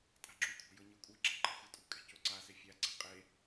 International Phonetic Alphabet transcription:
tʼ a̤ ɡ͡ǁ u kʷʰ a̤ j ɤ ɲ e kʷʼ ɤ ɡ͡ǁ ɛ̤ ǃ a̤ xʷ ɤ tʼ ṳ kʼ ɛ̤ c o ǀ a s e fʲ a ǀ ɛ̤ qʼ e

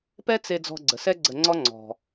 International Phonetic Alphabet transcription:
p ɛ˦ t͡s e˧ d͡z ɔ̤˧ ɡ͡ǀ ə˨ s ɛ˦ ɡ͡ǀ ə˧ ŋ͡ǀ ɔ˦ ŋ͡ǀ ɔ̤˧

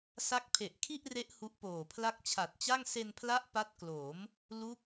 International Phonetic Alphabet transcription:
s a˦˥ k̚ pʰ e˨˩ ʔ kʰ i˥˩ ʔ r e˦˥ ʔ h u˦˥ ʔ p oː˨˩ pʰ l a˥˩ k̚ t͡ɕʰ a˨˩ t̚ t͡ɕ a˥˩ ŋ s e˧ n pʰ l a˦˥ ʔ p a˦˥ t̚ k l o˩˦ m | l u˦˥ k̚

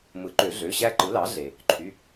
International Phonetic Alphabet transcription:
m ɯ˩˥ ǃ ø˨˩˦ ɮ ø˩˧˩ ɕ æ˦ ǃ ɯ˩˥ l ɑ˩˥ ɮ e˩ | ǃʰ y˩˧˩

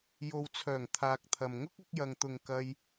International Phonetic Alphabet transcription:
j o˨ w t͡sʰ œː˨˩ ŋ t̪ʰ aː˨ k̚ t̪ʰ ɐ˨ m ŋ ʊ˥ k̚ ɐ˨˥ k̚ j ɐ˨ ŋ t̪ ʊ˨ ŋ k ɐ˧ j

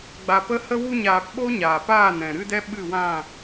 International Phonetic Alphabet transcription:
ɡ͡b a˨ p ə˧ h ə˧ w u˧ ɲ aː˨ p ɓ o˦ ɲ aː˨ p aː˦˨ n ɛ̃˨ ɾ ɨ˧ d ɛ˧ ɓ ɨ˦˨ w ã˦˨

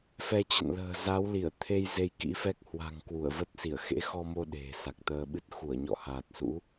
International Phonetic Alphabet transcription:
f ɛ˧ t͡ɕ ə̰˧˨ n l ə̤ː˨˩ z a˨˦ w l i˧˩ ə̯ t̪ʰ e˧ j z e˧ j k ḭ˧˥ f ɛ˦˥ k̚ h w a̤˨˩ ŋ k w u˧˩ ə̯ v ə˦˥ t̚ s i˧˩ ə̯ x ḛ˧˥ x ɔ˧ m o˧ ɗ e̤˨˩ s a˨˩ k̚ t̪ əː˧ ɓ ɨ˦˥ t̚ x u˧˩ ə̯ ɲ ɔ̰˧˨ h aː˨˩ t̚ s ṵ˧˥

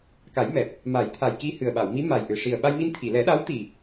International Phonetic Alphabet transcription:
k a˨˩˦ j m ɛ˨˩ p̚ | m a˨˩˦ j t̪ʰ a˨˩ j k i˧ h ɨ˨˩ ə̯ ɓ a˨˩˨ w m i˧˥ m a˨˩ j ʔ ɨ˨˩ ʂ i˨˩ ə̯ ɓ a˧ j m i˧ n t̪ʰ i˨˩˨ l ɛ˨˩˦ ɗ a˧˥ w t̪ i˨˩

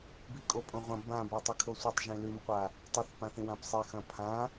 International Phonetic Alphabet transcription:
b i kʼ o pʼ õ ʁʷ ɐ̃ b ã b o tˤ i kʰ o sʷ ɐ tˤ ʒ ĩ l ʉ m qʷ a | tˤ ɨ θ p ã θ ĩ w ã p sˤ i x ɐ̃ pʰ ã

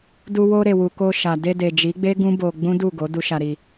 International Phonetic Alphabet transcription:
d u˧ w o˧ ɾ e˨ w u˨ k o˧ ʃ a˨ d e˧ d e˨ d͡ʒ i˨˦ ɡ͡b e˦ ɡ ũ˦ b o˧ ɡ͡b ũ˦ d u˦˨ ɡ o˨˦ d u˧ ʃ a˧ ɾ i˧

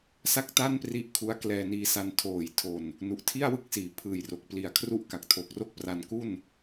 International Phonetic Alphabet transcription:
s a˥˩ k̚ t a˥˩ n p r i˦˥ ʔ kʰ u˦˥ a̯ k l ɛː˧ n iː˧ s a˧ n tʰ oː˨˩ j tʰ o˨˩ n | n u˨˩ ʔ tʰ i˥˩ a̯ w ɯ˥˩ k̚ s iː˩˦ pʰ ɯː˨˩ j r o˨˩ k̚ p l i˨˩ a̯ kʰ r u˥˩ ʔ k a˨˩ k̚ tʰ o˨˩ k̚ r o˥˩ k̚ p r a˧ n k u˥˩ n

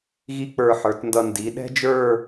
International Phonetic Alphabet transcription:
ɣ i˥ k͡p ə˞˧ ħ ə˞˩˧ t n d ʌ˧ n d i˩˧ ɗ ɛ̤˥ d͡ʒ ə˞˥˧

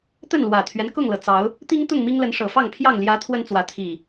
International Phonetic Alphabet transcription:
t̪ ə˥˨ n l w ä˨˩ t̪ʰ ɥ ɛ˦ n k ʊ˥˨ ŋ l ɤ˩ t͡s ɑ˨˦ ʊ̯ | t̪ i˦ ŋ t̪ ʊ˥˨ ŋ m i˦ ŋ l ə˨˦ n ʂ ɤ˨˩ f ɑ˥˨ ŋ pʰ j ɑ˥˨ ŋ l j ä˨˦ t̪ʰ w ə˦ n t͡s w ä˨˦ t̪ʰ i˨˩

